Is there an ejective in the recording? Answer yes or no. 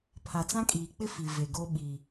yes